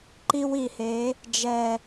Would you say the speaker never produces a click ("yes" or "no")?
no